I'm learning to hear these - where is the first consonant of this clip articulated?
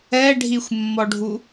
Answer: retroflex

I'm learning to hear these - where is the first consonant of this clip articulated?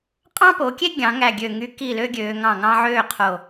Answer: uvula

